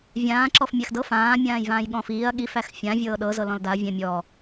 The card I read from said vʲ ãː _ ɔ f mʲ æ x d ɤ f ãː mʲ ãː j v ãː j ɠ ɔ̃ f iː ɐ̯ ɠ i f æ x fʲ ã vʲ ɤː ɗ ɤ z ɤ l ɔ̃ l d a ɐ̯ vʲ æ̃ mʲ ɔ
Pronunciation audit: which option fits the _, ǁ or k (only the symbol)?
ǁ